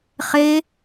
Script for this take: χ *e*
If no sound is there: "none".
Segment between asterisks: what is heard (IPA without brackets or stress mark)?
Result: e